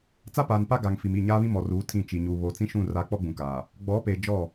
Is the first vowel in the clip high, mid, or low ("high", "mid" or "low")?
low